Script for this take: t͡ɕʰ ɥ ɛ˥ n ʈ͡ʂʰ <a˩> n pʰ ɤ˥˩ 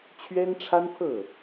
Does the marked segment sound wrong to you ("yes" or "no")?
yes